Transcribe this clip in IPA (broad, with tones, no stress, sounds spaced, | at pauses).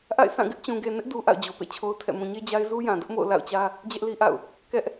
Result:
ʔ a̰˦˨ ɪ̯ s ã˦˨ ɡ ɪ˦ ʔ t͡ɕ ũ˨ ɡ e˨ n ɪ˦ ʔ d u˦ ʔ a̰˦˨ ʊ̯ d͡ʑ o˨ p ḛ˦˨ t͡ɕʰ o˦ ʊ̯ tʰ ɛ̰˦˨ m ũ˨ ɲ e˦ d͡ʑ a˦ ɪ̯ z u˦ j ã˨ d ʊ˦ ʔ m o̰˦˨ ʊ̯ l a̰˦˨ ʊ̯ t͡ɕ ä˦ | d͡ʑ ɛ˦ ʔ l i˦ ʔ a̰˦˨ ʊ̯ | k ɛ˦ ʔ